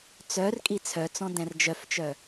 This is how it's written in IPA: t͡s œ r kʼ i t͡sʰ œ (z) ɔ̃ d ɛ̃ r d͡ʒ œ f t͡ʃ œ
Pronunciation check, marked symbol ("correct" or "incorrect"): incorrect